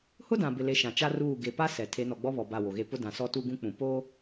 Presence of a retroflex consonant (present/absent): absent